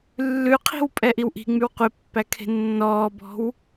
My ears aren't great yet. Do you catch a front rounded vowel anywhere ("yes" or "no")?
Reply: yes